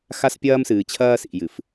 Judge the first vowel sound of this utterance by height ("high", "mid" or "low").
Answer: low